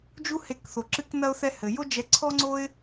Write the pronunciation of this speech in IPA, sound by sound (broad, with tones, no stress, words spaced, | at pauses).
d͡ʒu˦he˦˨kθo˧ǁɨ˦k nɐ˦ʊ̯θɛ˦ hɘ˧ jo˦d͡ʒɛ˧ǀʰɔ˦ŋ͡ǀo˦ɪ̯